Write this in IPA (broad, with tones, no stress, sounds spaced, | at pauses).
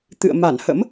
t̪ ɨ̰˧˨ ə̯ m a˧˩ n h ə̰˧˥ m